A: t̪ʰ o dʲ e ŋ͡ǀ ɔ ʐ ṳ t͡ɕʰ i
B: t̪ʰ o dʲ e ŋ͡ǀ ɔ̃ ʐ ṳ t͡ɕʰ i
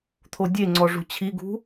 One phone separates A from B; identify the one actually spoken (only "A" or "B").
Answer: A